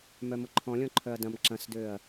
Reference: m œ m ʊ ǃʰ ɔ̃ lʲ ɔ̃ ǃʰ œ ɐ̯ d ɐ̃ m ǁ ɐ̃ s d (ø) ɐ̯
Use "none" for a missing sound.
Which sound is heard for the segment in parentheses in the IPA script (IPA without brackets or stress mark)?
ø